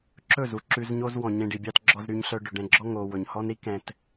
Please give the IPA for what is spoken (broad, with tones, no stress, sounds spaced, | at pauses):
ǁ ɵ˦˨ z u˨ ǁ ʉ˧ z ɲ o˦ z w ɔ̃˨ ɲ ẽ˧ ɖ i˨ bʲ ɑ˦ t ɡ͡ǁ ɔ˧ z ɾ y˧ ɲ ɬ œ˧ ɖ ɵ˨ ɖ ɛ̃˧ ɡ͡ǁ ɔ˦ ŋ o˨ w ɵ˨ ɲ h ɔ˦ n ɾ i˦ k ɛ̃˧ t